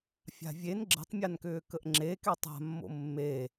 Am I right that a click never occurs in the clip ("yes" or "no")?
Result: no